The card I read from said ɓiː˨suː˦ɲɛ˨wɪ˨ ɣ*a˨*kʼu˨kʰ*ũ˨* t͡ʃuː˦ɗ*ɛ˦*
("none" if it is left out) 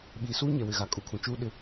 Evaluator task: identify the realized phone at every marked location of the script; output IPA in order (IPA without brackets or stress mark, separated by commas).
a˨, ũ˨, ɪ˦